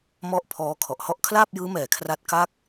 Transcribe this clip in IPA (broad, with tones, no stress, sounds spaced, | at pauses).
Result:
m ɔ˥˩ ʔ pʰ ɔː˦˥ kʰ ɔ˨˩ ʔ h ɔ˥˩ ʔ kʰ l aː˥˩ p̚ j ɯː˦˥ m ɛː˨˩ kʰ r a˦˥ t̚ k a˥˩ k̚